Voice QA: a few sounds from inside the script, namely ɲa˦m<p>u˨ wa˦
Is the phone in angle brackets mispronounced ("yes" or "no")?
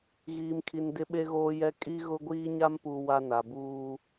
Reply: no